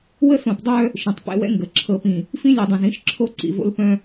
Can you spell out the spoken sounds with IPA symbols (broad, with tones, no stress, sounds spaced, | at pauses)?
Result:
w ə˦ s õ˨ p dˤ œ˦ | ʃ ĩ˨ tˤ p ɛ̰˦ w ɛ̰˦ ŋ ɡ ə˨˦ ǁʰ ɤ˨ p ĩ˨ | f ĩ˦ lʲ ɛ˨ dˤ œ̃˨ z ĩ˦ ʃ ǁʰ o˦ ǀ ḭ˨ v o̰˦ l p œ̃˦